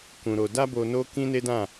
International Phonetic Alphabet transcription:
kũ˧ɾo˧ da˦bo˧ no˦ kĩ˦ne˦dã˦˨

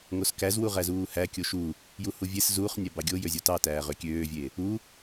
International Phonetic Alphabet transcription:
ŋoskæzwu ʁæzuːhæ kʲoʃu | juhuvʲes zuːχnʲæ bɑɡʲojø zʲotɑtæː ʁøkʲøːvʲe | u

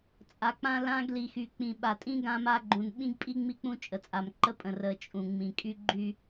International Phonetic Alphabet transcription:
t͡sʼa˨˦k͡pã˦ lã˦ɡli˨xy˨ k͡pĩ˨ɓa˨tʼĩ˦ ɡã˦ma˦ ɡ͡ǃũ˨nɓĩ˦ɡpʼi˦ ŋ͡mi˦k͡pũ˦t͡ʃʼə˨t͡sʼa˨m ǃə˦pʼə̃˨ rə˨ t͡ʃʼũ˨ŋ͡mĩ˨ kʼy˦ɡ͡ǃy˦

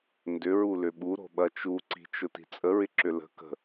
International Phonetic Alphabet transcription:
ndʏɹulʏ ɓuɾo̤ɓɐ t͡ʃuǀi̤t͡ʃʊti̤ t͡sʼəɹɪǁʏ lə̤ kə̤

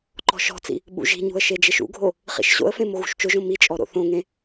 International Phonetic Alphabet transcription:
ǃɔ̤ʃɔ̤t͡sḭ | ɓṵʒi̤ɲṳə̯ ʃed͡ʒeʃṵɡʱo | χḭʃɕo̰ə̯fẽ moɣṳʃt͡ʃʊʒõ mit͡ʃʼɔ ɾo̰θõŋẽ

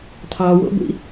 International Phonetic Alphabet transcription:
tʰɑwo̰ɡʷḭ

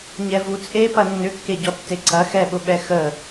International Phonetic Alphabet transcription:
ɲɛvut͡sʼe pɐnːʏkːe ɟɔtːeǀɐ xɛɓʊɓɛ xə

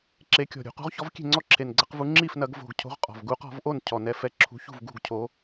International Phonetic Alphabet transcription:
ǁe˨˦kʲɔ̤˨˩ ɾʲṳ˧˩˧qṳ˨˦ʁçɔ˨˦v kʲe̤˥˩ŋ͡ǀɔ˥˩ǁʰe˨˩nɡ͡ǀɐ˨˦q vu˨˦ŋ͡ǁi˥˩f nɐ˧˩˧ɡvo̤˨˩ɡ cʰo̤˨˦ʁ qʼɔ̤˨˩v ɡu˨˦qɔ̤˧˩˧vʔo˥˩n cʰɔ˨˩nɛ˨˦fɛ˨˦ ǁʰṳ˨˦çṳ˥˩v ɡṳ˥˩ɡcʰo˨˦

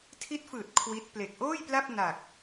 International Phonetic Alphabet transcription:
tʰi˦˥t̚fɯː˨˩t̚ kʰwi˦˥t̚ ple˨˩k̚ʔoː˥˩jpla˥˩p̚ na˨˩k̚

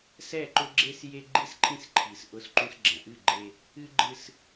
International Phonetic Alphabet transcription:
sɛ˦˨ǃʊ˦ɡ͡ǁe˦sje˦ ɡ͡ǃi˦sǃʰĩ˦sǃʰi˨s ʔʊ˦sǃũ˦s ɡ͡ǁɛ̃˨ʔɨ˦˨ɡ͡ǃe˦ | ɨ˦ɡ͡ǃɨ˦s

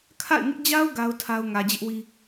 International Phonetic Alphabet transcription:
kʰa̰˦˨ɪ̯ŋɪ˦ʔ d͡ʑa˦ʊ̯ ɡa˦ʊ̯tʰa˦ʊ̯ ŋä˨d͡ʑɪ˦ʔwi˦

